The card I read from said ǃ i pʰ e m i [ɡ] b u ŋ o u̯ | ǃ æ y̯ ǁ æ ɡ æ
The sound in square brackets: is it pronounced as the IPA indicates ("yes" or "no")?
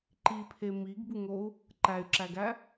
yes